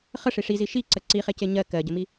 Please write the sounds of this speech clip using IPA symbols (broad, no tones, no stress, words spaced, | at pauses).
χəʂi ʂizi ʃiǀə ǀiχece ɲɜ kɜɟəmi